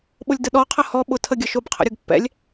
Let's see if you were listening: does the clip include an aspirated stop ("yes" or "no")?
yes